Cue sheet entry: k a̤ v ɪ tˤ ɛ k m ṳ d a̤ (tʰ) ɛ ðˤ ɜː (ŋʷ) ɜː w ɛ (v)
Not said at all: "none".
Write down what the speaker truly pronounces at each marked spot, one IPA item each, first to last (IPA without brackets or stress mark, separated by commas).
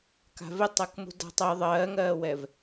tˤ, ŋ, v